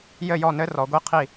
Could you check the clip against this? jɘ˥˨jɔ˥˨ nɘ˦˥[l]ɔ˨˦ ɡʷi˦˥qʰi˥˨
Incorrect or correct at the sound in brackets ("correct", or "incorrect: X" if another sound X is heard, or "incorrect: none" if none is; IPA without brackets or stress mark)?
incorrect: r